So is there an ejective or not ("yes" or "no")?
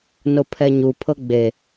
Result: no